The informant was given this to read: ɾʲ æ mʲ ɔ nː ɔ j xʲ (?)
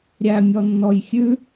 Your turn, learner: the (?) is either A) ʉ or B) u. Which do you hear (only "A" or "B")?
A